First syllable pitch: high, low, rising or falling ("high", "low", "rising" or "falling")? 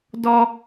low